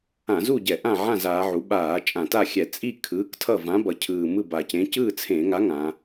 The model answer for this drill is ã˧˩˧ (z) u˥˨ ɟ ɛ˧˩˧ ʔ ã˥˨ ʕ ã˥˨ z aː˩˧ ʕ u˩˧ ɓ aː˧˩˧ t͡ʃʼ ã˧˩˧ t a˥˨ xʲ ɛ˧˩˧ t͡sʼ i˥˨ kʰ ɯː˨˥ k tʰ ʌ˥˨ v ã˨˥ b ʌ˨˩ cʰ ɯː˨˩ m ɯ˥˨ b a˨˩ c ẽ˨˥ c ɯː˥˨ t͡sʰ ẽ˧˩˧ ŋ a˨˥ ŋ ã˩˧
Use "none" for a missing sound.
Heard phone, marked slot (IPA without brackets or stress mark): z